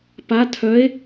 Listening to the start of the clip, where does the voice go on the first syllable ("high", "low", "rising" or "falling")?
rising